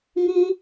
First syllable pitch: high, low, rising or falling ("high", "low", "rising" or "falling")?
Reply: high